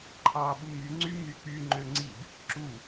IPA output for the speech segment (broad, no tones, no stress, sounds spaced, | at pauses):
ǃʰ ɑ ɓ u m y ŋ͡ǀ y m y k͡p y ŋ͡ǃ ø ŋ͡ǀ i b | ǁ u